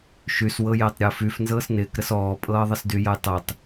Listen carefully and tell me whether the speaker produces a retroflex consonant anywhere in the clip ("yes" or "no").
no